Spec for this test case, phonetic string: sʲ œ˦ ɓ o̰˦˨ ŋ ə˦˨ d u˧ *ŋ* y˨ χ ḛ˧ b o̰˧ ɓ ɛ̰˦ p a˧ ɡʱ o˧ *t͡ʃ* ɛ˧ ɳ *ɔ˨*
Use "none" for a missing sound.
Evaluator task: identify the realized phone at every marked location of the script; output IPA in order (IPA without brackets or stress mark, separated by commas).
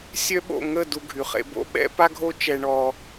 ɡʱ, t͡ʃ, ɔ˧